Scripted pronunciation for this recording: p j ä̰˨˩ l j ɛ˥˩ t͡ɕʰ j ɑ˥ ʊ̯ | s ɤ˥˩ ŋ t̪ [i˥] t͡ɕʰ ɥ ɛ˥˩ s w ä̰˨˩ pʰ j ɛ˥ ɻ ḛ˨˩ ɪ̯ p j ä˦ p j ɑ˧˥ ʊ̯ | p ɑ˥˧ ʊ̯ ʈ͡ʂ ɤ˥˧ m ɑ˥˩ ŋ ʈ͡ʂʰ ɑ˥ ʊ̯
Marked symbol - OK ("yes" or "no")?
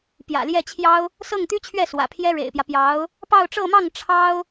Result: no